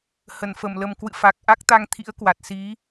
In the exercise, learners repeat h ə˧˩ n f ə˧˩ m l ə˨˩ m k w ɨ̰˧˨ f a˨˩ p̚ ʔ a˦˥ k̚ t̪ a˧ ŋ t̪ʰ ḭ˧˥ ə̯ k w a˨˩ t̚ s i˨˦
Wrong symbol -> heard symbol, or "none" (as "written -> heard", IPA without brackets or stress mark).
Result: p̚ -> k̚